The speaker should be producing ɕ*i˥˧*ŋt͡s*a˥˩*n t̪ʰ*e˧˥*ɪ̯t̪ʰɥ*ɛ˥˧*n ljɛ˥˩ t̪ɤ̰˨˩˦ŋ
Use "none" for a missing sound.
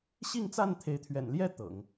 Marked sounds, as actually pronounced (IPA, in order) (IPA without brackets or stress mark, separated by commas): i˥˧, a˥˩, e˧˥, ɛ̰˨˩